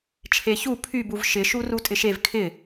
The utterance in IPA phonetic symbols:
t͡ʃʰ e ç u pʰ y b u v ʃ ɪ ʃ u r u tʼ ɪ ʃ e v kʰ ɪ

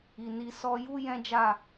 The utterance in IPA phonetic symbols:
i˨ n i˧ s ɔ˧ j u˦ j ɛ̃˦ d͡ʒ a˦˨

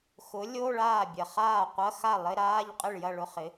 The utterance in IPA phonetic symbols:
x ʊ˨˥ lʲ o˧˥˧ ɭ aː˥˩ bʲ ɐ˨ χ aː˥˩ qʷ ɐ˧˥˧ x a˥˩ lˠ ɪ˧˥˧ ɾ aː˧˥˧ ʎ qʼ ɪ˥˩ ɭ j ɐ˥˩ ɭ ʊ˧˥˧ χ ɪ˨˥

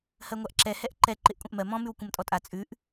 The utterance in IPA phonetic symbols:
h ɜ ŋʷ a ʔ ǁ ɛ h ɛ ʔ ǃ ɛ ǃ ɪ ʔ kʷʼ ɐ̃ ʔ m ɜ m ɔ̃ m ʉ w kʷ ɐ̃ m tʼ ɔ tʼ a t͡sʼ ʉ ʔ

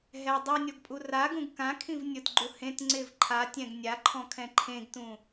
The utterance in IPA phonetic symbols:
ɦ ɛ dˤ u nʲ ɔ ɡ pʼ u r a ɡ ũ ɡ k ã kʰ ĩ v nʲ ʊ t ɡ͡ǃ u h ẽ t ŋ͡ǀ ɪ v ǃʰ a tʲ ɛ̃ ɡ nʲ a ǃʰ ɔ̃ kʰ ɛ̃ ǃʰ ẽ ɡ t ũ

